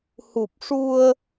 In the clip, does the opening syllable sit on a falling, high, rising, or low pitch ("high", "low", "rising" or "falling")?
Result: low